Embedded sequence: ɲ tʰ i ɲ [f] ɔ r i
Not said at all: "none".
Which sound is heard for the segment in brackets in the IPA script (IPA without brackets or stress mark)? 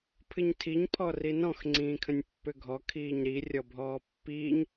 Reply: pʰ